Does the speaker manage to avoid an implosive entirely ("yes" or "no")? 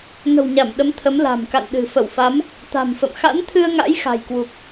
no